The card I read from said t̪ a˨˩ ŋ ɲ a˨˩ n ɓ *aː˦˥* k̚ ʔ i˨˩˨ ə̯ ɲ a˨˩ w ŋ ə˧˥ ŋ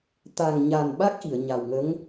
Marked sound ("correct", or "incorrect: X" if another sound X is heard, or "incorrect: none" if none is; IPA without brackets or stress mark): incorrect: a˦˥